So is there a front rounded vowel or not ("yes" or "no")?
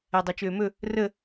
yes